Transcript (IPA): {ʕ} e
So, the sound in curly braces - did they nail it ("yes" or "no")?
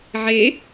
yes